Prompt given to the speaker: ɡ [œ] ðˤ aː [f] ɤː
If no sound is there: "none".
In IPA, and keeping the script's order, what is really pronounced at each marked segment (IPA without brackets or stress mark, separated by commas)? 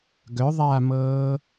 œ, m